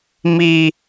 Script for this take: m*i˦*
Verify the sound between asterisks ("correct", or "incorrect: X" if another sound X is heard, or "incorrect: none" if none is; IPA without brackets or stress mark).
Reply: correct